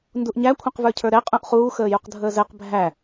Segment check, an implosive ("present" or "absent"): absent